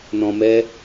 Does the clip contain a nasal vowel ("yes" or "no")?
yes